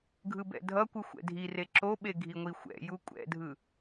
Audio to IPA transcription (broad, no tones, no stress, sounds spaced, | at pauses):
ɡʱ ɯ b ɛ̰ dʱ ʌ kʷ ɯ xʷ ɛ̰ dʱ i r e ǁ o ɓ e ɡʱ i ŋʷ i xʷ ɛ̰ j u kʷʼ ɛ̰ dʱ ɯ